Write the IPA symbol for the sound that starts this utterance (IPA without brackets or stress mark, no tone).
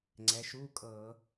ŋ͡ǀ